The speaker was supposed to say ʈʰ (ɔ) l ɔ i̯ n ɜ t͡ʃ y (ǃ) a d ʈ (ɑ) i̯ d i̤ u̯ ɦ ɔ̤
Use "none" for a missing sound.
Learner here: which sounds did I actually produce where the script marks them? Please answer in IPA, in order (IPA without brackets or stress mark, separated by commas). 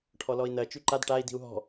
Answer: ɔ, ǃ, a